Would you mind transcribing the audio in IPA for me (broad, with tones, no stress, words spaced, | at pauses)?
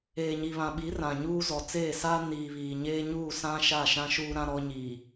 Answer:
eː˨ɲi˨βã˨ɓi˨˦ rã˨ɲuː˦ zɔ˨t͡seː˦˨saː˦ niː˨βiː˨ɲeː˦ ɲuː˦˨sã˦ ʃa˦˨ʃã˦ ʃuː˦ɾã˦ɾɔ˦ɲiː˨